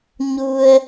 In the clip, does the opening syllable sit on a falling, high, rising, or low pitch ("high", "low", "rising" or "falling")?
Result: low